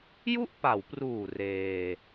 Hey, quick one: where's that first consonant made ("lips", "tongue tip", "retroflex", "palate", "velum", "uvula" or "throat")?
palate